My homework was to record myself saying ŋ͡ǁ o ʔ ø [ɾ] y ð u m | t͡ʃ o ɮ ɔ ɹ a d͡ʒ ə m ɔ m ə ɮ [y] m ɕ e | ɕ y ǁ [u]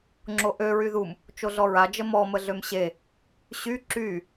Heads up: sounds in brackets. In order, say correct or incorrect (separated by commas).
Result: incorrect, incorrect, incorrect